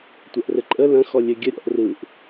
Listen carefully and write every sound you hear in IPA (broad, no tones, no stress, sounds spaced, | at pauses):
tʷ ɐ ʔ r ɘ ǃʼ ə l ɐ̃ x ɔ lʲ ɘ ɡʲ ə ɾʲ ɔ̰ ʔ r ɯ ʔ